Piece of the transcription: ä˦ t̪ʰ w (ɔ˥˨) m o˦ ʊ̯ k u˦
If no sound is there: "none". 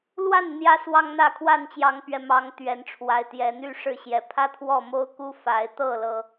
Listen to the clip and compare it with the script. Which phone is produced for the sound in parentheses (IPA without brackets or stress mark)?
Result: ɔ˥˨